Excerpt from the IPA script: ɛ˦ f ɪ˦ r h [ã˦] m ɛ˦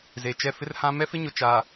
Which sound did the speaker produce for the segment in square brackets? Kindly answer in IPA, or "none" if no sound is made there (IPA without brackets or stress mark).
ã˦